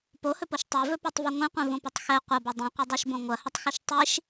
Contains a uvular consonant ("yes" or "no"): yes